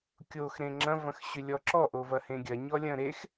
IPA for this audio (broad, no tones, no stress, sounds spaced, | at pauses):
kʲ o x ɾ ẽ ŋ͡ǁ ɐ̃ v ɐ̃ x ɕ ʏ lʲ ɔ ǁ ɔ ʔ o v ɐ h ẽ ɡʲ ɐ ɲ ɔ lʲ ɐ̃ ɾ e x